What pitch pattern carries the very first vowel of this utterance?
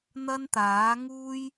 high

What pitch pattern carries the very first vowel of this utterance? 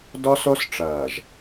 high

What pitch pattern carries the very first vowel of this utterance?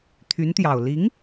rising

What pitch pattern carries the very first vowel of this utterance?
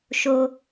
high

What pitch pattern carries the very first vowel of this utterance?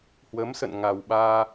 rising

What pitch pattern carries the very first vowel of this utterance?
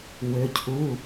rising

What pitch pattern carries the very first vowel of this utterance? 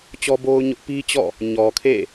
high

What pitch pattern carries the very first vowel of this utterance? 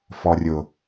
low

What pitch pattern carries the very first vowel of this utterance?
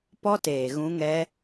high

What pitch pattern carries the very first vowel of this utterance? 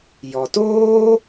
low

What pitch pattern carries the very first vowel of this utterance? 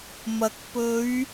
low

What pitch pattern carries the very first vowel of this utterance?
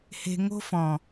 low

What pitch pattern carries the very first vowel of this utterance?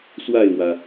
falling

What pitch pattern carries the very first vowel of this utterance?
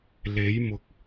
rising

